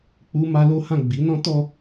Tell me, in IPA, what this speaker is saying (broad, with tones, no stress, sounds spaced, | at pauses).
k͡p u˦ m a˦ l o˦ h ã˦˨ ɡ͡b i˨˦ n ɔ̃˦ t ɔ˧